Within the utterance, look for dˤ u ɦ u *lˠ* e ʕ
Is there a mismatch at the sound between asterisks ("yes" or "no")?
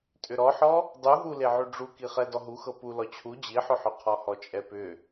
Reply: yes